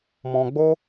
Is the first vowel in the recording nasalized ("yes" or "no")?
yes